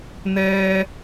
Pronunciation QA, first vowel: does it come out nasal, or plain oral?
oral